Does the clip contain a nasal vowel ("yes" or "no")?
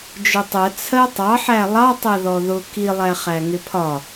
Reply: no